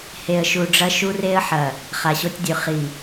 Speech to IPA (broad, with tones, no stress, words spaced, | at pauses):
he˨ə̯ʃu˨ɖ͡ʐɐ˦ ʃu˦re˦ə̯ħɐ˨ | χa˨ɕo˦tʲdʲʉ˨ χi˨